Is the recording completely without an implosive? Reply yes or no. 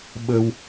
no